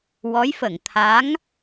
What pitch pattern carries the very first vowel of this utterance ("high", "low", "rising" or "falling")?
rising